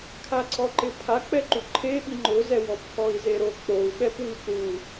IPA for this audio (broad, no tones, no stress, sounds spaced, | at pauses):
kʰ a ǀʰ ɔ ǃ ɪ pʰ a k͡p ɛ ǃ u ǃʰ e ɓ i ŋ͡ǃ ʊ z ɛ w ɔ p kʰ ɔ i̯ z e ɾ o k͡p o u̯ ɓ ɛ p w i p ɾ u